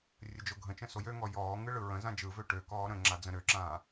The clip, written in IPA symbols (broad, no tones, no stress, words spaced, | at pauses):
rʲəd͡ʒoɡʱə̃t͡ʃə̃ sojøŋɔ jɔː ŋɯɭɯɹə̃ zãd͡ʒɯvø ʈø kɔːɾə̃ŋ͡ǁa d͡zə̃ɾøǁãː